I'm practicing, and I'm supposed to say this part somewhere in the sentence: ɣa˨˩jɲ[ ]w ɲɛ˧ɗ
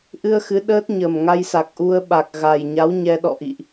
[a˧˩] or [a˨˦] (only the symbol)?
a˨˦